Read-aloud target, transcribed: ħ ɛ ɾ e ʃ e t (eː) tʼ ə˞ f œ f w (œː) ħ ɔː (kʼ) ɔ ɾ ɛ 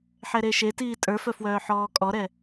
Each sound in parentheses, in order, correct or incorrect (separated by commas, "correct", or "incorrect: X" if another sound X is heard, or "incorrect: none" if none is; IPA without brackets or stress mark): incorrect: iː, correct, correct